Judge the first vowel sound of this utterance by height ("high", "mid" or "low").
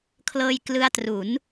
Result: mid